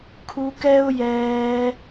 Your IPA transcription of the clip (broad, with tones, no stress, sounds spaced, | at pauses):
kʰ u˧ k ɛ˦ ʊ̯ j ɛː˧